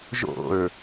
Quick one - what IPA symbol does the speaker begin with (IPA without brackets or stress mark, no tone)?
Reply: ʒ